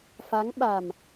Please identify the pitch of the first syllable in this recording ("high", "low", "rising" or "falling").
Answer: rising